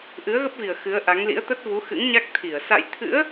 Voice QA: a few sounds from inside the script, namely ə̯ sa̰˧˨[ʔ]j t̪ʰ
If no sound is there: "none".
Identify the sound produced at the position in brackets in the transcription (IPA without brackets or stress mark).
none